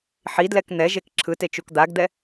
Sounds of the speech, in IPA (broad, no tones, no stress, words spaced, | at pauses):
ħidlɛk n̪ɛʒek ǁʰɯtet͡ʃuk d̪aɡd̪ɛ